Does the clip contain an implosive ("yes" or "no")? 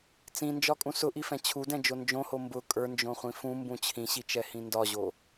no